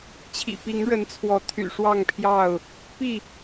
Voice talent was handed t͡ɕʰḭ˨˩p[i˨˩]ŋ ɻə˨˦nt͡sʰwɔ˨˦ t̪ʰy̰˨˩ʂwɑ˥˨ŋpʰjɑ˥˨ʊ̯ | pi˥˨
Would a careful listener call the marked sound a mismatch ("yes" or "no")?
yes